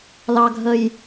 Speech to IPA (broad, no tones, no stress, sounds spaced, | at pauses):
l ɑ ɡʱ ə j